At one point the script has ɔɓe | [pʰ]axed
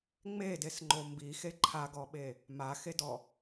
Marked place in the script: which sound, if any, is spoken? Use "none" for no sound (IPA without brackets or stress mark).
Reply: m